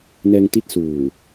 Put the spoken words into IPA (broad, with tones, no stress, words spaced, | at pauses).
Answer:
nɛː˧ŋti˦˥t̚suː˨˩